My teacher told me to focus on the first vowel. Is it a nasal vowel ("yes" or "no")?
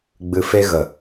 no